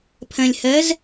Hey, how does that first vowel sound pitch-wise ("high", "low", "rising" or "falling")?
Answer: low